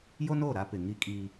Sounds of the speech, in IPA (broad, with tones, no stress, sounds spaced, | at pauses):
j o˦ n oː˦˨ ɾ a˦ p ɪ˨ ŋ i˦ kʼ iː˦